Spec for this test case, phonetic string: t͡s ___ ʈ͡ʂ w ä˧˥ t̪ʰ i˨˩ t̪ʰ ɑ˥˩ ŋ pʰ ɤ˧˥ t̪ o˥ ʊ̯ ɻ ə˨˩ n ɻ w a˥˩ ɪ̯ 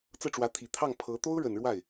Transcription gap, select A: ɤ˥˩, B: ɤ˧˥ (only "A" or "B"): A